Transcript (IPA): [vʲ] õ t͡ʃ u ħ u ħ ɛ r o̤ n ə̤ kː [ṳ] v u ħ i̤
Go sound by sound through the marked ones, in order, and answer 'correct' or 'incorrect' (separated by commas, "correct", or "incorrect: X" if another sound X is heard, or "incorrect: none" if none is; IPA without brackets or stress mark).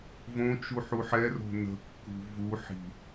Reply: incorrect: v, correct